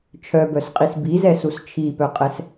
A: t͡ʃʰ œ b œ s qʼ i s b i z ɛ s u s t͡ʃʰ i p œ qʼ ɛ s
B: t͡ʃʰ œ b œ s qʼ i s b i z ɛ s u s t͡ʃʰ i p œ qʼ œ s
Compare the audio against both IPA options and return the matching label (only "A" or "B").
A